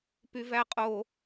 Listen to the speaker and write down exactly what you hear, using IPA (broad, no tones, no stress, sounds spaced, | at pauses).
p y v æ qʼ o